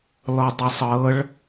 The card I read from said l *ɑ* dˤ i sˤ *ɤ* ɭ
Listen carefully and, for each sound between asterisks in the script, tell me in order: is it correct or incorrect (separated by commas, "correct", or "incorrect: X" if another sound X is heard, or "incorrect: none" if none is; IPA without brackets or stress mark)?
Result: incorrect: ɔ, correct